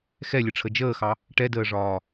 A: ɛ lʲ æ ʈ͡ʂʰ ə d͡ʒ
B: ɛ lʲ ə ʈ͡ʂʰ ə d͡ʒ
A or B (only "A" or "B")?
B